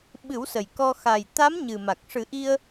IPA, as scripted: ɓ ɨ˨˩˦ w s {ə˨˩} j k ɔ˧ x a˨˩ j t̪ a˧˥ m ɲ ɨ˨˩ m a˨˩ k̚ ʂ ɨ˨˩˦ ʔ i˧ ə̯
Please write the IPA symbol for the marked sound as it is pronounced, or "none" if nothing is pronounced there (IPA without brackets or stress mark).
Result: ə˨˩